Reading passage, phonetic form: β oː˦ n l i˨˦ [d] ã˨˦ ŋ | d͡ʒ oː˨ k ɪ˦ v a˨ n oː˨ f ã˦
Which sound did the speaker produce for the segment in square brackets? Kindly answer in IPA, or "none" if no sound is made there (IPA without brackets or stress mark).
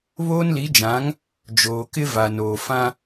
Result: d͡ʒ